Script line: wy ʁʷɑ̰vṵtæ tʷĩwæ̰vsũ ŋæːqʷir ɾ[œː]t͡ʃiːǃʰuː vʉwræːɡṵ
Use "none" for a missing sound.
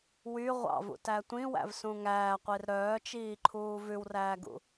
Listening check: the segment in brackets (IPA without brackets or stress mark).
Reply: œː